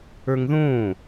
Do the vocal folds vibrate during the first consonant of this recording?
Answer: yes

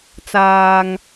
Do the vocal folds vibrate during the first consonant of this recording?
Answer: no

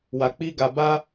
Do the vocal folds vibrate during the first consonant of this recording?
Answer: yes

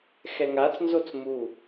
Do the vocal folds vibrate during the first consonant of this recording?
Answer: no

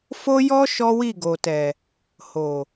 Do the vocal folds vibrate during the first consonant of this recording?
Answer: no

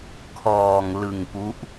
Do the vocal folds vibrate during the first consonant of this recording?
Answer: no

